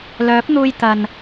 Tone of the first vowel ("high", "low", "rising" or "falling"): rising